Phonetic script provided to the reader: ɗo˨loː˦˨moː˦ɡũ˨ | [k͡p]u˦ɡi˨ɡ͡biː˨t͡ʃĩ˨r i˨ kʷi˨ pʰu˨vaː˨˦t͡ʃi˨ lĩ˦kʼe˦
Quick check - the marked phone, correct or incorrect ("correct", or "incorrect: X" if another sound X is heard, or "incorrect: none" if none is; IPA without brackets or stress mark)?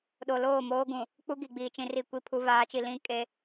correct